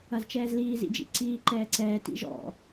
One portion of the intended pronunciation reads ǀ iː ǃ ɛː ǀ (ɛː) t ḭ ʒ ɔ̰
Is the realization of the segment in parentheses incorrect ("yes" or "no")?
no